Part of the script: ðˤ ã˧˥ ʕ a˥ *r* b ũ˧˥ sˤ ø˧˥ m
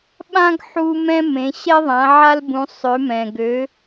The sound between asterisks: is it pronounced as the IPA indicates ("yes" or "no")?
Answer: no